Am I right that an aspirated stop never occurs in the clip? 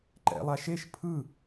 no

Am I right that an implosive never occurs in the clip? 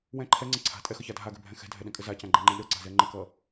no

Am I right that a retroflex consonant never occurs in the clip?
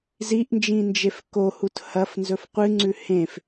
yes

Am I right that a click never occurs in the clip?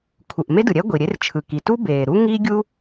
yes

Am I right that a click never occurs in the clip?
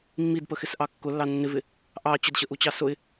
yes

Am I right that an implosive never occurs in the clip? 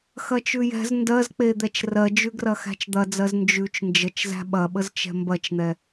no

